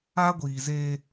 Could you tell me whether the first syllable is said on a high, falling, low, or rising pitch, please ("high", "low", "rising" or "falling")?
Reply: high